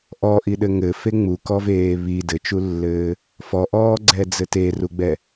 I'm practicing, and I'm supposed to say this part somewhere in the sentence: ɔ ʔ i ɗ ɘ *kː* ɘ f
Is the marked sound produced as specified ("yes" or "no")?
no